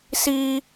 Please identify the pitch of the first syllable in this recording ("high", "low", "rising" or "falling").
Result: high